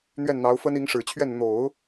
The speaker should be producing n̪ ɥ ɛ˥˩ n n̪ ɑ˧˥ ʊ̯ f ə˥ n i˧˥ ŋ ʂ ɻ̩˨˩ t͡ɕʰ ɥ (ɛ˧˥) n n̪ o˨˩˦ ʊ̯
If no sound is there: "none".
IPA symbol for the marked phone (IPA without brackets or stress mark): ɛ˥˩